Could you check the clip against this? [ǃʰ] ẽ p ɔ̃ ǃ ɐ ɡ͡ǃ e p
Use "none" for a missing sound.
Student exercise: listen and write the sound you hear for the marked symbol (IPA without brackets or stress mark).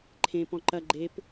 ǃʰ